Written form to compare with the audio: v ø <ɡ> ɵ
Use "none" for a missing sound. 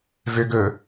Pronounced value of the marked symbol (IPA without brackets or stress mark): ɡ